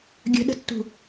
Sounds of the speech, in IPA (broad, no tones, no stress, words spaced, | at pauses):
ɡʲə̤ɗə̤tːṳ